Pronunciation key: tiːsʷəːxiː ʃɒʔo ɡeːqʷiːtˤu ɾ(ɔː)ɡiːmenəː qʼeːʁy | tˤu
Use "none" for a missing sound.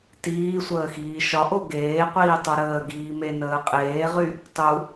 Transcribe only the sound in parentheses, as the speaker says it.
əː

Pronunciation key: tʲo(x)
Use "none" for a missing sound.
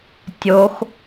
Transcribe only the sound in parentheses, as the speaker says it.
x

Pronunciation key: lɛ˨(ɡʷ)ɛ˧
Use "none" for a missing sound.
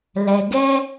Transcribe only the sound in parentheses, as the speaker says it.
ɡ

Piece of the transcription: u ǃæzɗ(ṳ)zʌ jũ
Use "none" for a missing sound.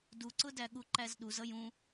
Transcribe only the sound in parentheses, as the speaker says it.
u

